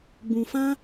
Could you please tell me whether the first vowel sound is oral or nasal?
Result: nasal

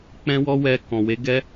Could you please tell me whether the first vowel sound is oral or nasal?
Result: nasal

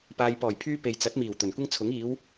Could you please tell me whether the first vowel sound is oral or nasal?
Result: oral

